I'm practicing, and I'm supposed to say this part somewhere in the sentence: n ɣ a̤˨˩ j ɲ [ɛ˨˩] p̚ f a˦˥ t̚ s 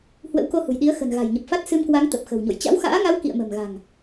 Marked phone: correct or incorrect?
incorrect